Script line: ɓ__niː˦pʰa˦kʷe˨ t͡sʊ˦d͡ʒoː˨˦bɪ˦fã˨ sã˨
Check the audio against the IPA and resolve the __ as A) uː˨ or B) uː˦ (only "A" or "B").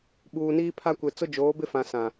A